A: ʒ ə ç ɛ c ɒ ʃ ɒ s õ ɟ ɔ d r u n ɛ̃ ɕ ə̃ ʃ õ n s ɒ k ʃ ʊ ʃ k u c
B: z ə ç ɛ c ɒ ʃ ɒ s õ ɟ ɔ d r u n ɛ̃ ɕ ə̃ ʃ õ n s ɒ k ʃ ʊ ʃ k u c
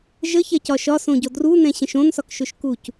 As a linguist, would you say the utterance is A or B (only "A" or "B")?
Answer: A